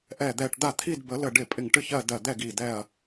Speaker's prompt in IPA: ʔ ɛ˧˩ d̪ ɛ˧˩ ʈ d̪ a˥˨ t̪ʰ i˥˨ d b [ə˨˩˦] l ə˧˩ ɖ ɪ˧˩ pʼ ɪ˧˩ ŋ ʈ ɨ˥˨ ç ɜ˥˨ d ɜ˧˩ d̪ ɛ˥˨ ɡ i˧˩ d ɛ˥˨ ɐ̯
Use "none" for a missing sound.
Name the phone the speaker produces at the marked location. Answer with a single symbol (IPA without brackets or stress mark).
ə˨˩˦